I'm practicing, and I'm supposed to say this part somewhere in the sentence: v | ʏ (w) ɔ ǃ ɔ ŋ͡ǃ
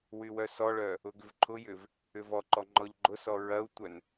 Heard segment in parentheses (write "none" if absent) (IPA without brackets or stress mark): v